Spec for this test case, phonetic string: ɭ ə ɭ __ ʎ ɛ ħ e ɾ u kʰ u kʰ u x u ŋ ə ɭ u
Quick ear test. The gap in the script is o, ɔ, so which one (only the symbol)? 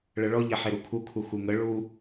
ɔ